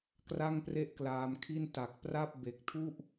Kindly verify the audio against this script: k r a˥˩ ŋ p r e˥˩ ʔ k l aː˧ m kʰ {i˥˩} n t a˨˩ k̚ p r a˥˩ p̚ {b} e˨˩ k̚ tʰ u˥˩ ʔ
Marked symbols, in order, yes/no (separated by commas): yes, yes